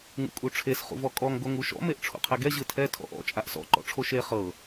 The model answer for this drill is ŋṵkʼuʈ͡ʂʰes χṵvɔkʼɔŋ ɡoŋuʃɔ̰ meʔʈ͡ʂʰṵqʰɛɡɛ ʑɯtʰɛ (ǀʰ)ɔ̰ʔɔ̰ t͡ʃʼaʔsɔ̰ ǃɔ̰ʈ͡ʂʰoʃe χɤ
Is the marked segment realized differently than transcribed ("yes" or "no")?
yes